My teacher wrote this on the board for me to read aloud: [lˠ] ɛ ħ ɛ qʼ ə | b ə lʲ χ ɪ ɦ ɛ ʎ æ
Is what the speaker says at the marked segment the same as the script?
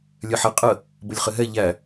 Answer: no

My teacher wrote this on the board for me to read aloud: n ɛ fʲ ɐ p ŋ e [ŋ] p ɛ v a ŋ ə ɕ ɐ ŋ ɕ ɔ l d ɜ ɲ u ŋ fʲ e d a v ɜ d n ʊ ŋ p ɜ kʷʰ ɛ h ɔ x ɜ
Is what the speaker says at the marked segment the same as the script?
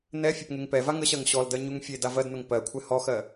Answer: yes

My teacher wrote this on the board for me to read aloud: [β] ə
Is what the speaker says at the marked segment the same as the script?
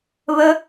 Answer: yes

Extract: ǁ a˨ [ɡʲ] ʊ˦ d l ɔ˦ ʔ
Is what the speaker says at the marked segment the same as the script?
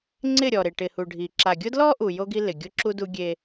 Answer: yes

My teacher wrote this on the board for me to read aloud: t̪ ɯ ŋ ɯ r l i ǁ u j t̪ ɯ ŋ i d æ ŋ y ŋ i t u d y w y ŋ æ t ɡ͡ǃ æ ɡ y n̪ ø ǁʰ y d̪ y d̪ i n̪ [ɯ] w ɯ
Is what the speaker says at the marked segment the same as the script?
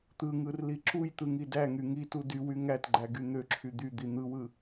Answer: yes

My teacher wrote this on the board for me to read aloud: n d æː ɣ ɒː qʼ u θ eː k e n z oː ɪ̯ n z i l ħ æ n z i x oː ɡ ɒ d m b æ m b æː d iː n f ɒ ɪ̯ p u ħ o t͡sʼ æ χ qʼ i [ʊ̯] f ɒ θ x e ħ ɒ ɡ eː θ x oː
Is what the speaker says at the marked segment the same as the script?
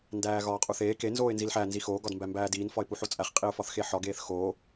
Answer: yes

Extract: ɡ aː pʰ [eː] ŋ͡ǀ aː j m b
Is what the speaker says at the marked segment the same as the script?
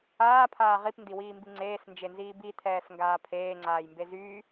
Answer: yes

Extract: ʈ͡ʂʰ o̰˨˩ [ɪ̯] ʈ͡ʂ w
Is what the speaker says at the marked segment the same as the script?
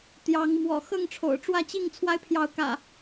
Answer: no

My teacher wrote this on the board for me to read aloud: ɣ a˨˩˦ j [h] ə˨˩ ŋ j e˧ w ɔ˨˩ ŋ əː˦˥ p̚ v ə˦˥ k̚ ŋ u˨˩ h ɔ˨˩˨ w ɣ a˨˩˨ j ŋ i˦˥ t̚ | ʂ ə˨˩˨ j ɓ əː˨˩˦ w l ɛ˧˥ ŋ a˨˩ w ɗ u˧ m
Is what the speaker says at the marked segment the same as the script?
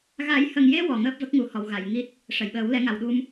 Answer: yes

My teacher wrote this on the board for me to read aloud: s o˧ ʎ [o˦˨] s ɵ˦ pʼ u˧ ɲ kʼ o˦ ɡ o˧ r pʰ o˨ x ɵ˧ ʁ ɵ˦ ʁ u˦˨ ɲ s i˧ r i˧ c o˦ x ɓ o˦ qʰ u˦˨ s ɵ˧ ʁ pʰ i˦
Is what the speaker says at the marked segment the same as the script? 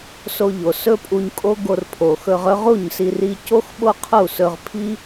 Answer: no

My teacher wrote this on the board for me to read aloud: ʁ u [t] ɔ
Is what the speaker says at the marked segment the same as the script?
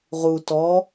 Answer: yes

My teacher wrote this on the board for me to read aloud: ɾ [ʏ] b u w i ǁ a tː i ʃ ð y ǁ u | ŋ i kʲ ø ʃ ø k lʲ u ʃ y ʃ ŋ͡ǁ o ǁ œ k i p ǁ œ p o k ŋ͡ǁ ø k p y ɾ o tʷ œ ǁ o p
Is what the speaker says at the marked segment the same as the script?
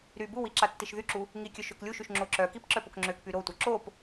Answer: no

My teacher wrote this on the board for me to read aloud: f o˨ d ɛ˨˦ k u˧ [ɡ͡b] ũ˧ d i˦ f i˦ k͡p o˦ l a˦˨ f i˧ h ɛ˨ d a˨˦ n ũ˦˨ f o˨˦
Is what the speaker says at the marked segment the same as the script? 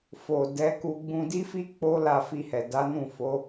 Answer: yes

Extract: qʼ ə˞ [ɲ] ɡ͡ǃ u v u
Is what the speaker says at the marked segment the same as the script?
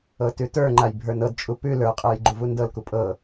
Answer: no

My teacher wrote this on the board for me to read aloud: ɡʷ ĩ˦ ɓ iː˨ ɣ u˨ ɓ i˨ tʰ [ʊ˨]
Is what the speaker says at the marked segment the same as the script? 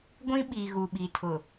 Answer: yes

